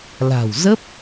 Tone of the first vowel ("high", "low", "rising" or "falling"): low